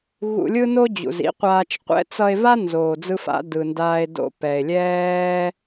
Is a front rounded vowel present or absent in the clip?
absent